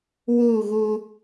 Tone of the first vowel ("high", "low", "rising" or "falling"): falling